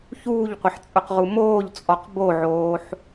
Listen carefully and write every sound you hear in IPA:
ç uː ʎ qʷ ɪ ħ t͡sʼ ʊ q ʁ u m oː ʎ t͡sʼ ɔ q b o ʕ oː ħ

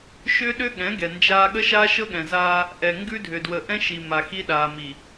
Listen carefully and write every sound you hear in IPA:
ʃ ʏː˦ ɗ ʏː˦ ɠ ɛ̃˨˦ ɡ ɛ˨ n d͡ʒ aː˦ ɠ ə˦ ʃ aː˦ ʃ ɤ˦ ɠ ɛ̃˨ z aː˦ | ʔ ɛ˨ ŋ ɡ ʉ˦ dʱ ʏ˨ d w ə˨ ʔ ɛ̃˦ ʃ i˨ m a˨ x i˦ ɗ aː˨ m i˨

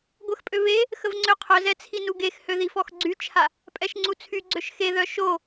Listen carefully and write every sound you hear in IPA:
ɡʷ ə x pʼ ø β e | x ə v ŋ͡ǀ ø qʰ œ z ɛ t͡sʰ i n u ɡ e x h ø ð i f ɔ x ɡ͡ǀ y t͡ʃʰ a | pʼ ɛ ʃ ŋ͡ǀ u t͡sʰ y ɡ͡ǀ ø ʃ x e ð œ ʃ o

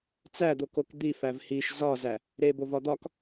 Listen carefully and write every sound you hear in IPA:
t͡s æ d̪ o k o k d̪ i f æ v h i ʃ z ɒ z æ | ɾ e b o v ɒ d̪ ɒ k

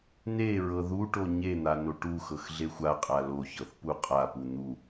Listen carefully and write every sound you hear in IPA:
n e ɹ ɤ ð u ʈ o ɲ e n̪ a n o ʈ u x ɤ x ɮ e xʷ a qʼ a l o ç ɤ θ p u qʼ a p u n̪ u

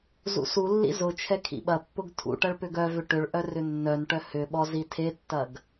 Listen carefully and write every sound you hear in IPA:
z ṵ s u lː ḭ z ʊ t͡ʃʰ ɛ kʰ ḭ ɓ ɐ pː ʊ ɡ tʰ ṵ ʈ ɐ ɭ p ʏ ɡ œ v ʏ ʈ ʏ ɭ ʔ œ r ʏ nː œ n ʈ œ h ʏ ɓ ɔ z i tʰ e tː ɐ ɡ

